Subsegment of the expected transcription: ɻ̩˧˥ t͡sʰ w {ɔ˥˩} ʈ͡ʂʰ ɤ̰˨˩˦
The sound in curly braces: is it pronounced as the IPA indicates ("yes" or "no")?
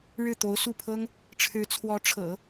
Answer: no